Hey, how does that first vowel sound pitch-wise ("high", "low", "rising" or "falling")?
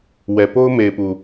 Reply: low